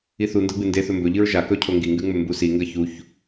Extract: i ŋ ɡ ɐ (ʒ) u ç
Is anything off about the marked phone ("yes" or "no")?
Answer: yes